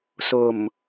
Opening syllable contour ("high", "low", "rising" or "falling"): low